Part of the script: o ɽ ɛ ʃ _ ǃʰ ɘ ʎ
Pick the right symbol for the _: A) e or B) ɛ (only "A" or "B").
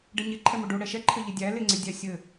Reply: B